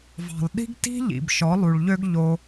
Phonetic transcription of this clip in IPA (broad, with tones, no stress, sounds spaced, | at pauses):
v ɑ̤˨ lˠ ɗ i̤˦ ɡ t i̤˦ ʎ ḭ˨ b ʃ ɔ˨˦ lˠ u˨ ɭ ʎ ø˦ ɡ ʎ o˧